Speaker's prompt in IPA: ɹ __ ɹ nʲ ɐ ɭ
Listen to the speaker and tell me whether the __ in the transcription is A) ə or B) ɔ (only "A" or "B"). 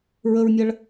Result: A